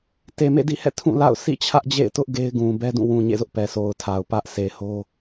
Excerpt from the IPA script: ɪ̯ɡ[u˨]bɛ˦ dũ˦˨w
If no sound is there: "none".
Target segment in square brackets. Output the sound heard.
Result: ũ˨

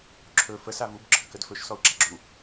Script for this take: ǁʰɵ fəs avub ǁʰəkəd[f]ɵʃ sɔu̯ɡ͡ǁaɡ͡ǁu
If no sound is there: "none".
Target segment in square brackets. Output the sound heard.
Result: f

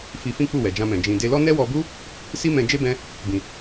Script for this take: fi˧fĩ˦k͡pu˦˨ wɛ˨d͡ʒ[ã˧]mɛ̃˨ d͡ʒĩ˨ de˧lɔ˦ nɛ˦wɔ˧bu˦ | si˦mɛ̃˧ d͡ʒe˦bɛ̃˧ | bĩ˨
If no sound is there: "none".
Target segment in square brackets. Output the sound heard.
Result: ã˧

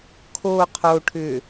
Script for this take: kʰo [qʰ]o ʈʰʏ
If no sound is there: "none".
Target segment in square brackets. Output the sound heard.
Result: qʰ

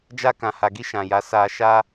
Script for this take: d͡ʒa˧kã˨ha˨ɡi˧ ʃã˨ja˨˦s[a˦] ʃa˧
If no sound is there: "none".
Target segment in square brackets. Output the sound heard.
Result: a˧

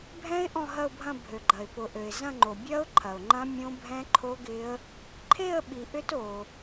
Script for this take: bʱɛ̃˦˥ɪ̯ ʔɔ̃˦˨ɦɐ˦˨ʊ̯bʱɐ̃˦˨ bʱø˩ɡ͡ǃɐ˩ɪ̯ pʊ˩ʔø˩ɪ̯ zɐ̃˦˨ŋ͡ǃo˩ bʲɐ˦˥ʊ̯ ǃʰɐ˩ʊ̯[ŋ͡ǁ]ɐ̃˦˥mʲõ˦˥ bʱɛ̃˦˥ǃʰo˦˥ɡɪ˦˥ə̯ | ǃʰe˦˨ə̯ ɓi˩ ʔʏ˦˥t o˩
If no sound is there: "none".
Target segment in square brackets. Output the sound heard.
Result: ŋ͡ǃ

